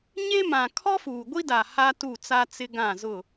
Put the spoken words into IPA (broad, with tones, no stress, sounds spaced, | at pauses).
ɲ e˦ m ã˨ kʰ ɔ˦ f uː˨ ɡʷ i˦ d a˨ h a˦ t u˦˨ t͡s a˦ t͡s ɪ˦ ɡ ã˦˨ z ʊ˦˨